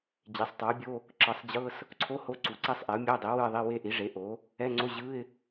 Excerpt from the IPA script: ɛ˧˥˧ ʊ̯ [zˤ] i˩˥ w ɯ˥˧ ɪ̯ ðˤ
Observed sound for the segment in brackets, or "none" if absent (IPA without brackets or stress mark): dˤ